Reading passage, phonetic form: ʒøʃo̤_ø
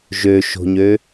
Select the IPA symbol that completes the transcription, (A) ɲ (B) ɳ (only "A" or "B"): A